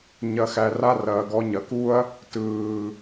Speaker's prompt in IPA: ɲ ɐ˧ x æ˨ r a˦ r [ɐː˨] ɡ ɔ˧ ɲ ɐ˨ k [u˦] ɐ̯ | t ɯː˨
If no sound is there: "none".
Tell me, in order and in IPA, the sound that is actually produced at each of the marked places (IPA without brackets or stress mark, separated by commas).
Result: ɐː˨, u˦